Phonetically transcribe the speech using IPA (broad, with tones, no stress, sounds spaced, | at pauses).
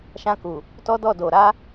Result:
ʃ ã˧ k u˨ | t ɔ˦ d ɔ˦˨ d o˨ ɾ a˧